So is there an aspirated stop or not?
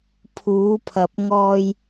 yes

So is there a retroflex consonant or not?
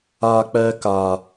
no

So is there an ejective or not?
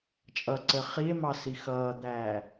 yes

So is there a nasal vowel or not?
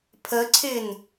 no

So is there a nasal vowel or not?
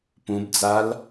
yes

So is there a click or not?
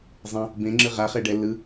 yes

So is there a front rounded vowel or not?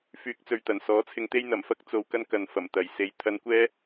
yes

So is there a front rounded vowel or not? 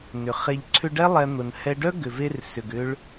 yes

